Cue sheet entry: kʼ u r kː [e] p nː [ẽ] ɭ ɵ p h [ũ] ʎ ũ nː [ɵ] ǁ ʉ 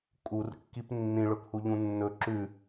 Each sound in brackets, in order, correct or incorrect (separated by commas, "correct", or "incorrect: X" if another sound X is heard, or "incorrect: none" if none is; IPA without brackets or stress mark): incorrect: i, incorrect: ĩ, incorrect: u, correct